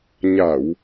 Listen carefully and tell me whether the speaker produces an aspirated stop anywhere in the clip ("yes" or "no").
no